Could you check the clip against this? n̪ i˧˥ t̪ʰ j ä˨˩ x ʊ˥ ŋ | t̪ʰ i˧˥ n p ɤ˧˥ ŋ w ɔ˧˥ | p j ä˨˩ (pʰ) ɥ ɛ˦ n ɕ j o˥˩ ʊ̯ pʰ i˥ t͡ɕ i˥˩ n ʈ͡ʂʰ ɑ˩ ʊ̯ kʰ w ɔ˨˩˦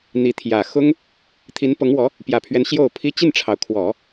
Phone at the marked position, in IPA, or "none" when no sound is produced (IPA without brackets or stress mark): pʰ